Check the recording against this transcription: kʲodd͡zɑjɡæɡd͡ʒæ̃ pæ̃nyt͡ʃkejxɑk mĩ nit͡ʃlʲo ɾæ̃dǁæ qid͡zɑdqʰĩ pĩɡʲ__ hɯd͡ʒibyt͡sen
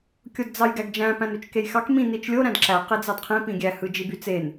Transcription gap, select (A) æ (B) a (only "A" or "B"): A